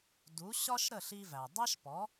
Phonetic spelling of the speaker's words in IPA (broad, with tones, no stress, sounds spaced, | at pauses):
d u˩˥ ɕ ɒ˥ ʃ ɾ ə˥˩ ɬ i˧ v æ˩ dˤ æ˥ ʃ p ɔ˩˥